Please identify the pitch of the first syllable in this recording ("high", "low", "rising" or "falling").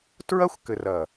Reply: high